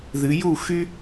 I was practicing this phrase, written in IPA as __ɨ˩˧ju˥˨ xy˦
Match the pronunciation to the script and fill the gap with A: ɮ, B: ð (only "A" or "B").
B